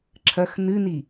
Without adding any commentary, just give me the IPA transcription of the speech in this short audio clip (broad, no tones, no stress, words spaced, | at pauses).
ǁʰɐx nɨni